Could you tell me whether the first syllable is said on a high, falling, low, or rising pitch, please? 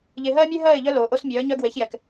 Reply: low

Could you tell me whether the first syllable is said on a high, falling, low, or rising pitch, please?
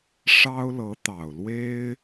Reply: high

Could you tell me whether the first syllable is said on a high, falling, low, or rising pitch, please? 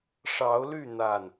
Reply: rising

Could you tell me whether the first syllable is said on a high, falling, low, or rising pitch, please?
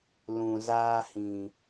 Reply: low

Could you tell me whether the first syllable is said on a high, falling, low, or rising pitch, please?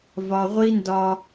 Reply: low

